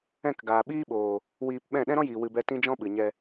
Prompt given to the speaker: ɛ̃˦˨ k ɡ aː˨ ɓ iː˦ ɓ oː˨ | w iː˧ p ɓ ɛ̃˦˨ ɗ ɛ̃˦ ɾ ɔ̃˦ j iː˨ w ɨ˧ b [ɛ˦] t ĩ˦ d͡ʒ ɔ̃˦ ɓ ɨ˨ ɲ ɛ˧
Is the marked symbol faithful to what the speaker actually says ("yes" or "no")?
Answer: yes